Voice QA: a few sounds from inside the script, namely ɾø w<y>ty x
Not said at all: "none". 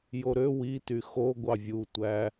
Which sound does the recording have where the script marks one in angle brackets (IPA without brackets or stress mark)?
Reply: i